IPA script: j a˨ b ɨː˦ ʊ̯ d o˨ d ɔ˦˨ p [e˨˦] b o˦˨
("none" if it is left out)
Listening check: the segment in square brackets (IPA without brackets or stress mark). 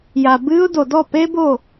e˦